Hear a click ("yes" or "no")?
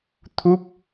no